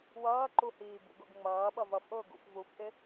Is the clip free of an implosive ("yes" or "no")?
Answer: no